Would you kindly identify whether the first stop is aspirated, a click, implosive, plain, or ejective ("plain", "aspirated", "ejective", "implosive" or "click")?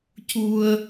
plain